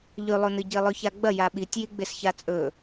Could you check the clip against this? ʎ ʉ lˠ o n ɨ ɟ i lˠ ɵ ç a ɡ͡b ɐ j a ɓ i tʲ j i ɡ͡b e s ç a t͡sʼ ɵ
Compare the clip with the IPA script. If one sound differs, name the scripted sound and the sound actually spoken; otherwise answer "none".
none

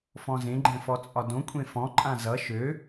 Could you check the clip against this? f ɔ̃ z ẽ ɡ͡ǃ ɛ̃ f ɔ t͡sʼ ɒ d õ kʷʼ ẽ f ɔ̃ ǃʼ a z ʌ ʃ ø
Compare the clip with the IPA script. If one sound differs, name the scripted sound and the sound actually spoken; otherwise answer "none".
a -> ã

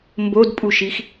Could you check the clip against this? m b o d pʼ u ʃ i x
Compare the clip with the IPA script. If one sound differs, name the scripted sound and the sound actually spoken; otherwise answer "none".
none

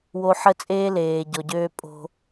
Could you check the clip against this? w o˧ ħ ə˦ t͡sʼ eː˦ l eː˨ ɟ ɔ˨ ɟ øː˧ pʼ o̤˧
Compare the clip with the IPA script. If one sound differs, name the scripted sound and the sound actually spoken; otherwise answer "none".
none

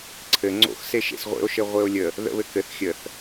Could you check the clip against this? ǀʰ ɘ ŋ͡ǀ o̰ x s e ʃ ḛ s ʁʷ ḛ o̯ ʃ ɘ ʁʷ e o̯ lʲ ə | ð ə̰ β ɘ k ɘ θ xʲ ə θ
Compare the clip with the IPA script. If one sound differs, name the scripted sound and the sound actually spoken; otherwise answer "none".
none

